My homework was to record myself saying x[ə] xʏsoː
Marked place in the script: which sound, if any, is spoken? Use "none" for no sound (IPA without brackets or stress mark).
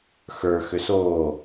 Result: ə˞